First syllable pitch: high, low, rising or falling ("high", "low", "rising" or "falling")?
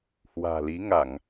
low